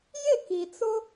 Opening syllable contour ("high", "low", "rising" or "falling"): falling